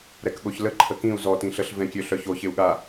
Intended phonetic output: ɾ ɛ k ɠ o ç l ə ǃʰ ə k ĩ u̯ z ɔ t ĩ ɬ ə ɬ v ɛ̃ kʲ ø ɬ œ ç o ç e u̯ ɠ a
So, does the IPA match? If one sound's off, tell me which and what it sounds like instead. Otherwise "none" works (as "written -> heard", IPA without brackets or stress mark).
none